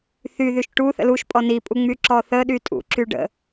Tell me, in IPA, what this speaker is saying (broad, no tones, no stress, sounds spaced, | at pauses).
θ y ð y ʃ ʈ u θ ə̰ l u ʃ pʼ ɔ n i pʼ u ŋ͡m y ǁ ɔ θ ə ɗ y tʼ ṵ ǁ y ɖ ə̰